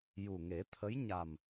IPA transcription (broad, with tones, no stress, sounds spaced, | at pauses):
j u˨˩ ŋ e˨˩˦ t̪ʰ ə˧˥ j ɲ a˨˩ m